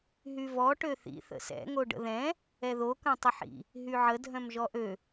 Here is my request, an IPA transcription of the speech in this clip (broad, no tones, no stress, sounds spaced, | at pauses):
ɦ y v ɔ ʈ ø θ ḭ θ ə̰ s ɛ̰ ŋ o ɖ ə̰ ð ɛ̃ | ɛ ð o k œ̃ tˤ ə ħ ḭ | ɦ y ʕ ə dʱ œ̃ m ʒ ɔ ʔ ø